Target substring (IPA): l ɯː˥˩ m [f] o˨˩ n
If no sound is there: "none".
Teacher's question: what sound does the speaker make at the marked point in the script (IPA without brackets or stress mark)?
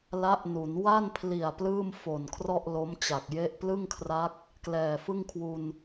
f